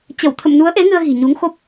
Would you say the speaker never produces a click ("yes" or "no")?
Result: yes